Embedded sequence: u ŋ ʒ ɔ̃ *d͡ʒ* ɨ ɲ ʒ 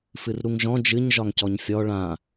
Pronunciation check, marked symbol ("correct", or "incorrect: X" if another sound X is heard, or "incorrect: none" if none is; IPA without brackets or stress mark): correct